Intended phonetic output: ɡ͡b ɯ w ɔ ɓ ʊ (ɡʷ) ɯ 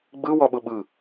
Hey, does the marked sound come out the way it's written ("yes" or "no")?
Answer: no